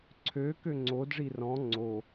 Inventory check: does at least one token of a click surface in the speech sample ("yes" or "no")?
yes